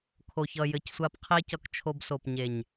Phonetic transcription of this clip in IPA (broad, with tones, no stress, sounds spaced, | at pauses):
kʰ o˧ ç ʌ˧ j ɘ˧ c sʷ a˦ p qʰ e˦ c ʌ˧ k t͡ʃʰ o˧ b s o˨ p ɲ e˨ ɲ